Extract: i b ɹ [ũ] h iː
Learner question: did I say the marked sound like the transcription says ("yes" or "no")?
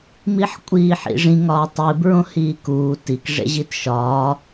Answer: no